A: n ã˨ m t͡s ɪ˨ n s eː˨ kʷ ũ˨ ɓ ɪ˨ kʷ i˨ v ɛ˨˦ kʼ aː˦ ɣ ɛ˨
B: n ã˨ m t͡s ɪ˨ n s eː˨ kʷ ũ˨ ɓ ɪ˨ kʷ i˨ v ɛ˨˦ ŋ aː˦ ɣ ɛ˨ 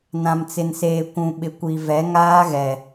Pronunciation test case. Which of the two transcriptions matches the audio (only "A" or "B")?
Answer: B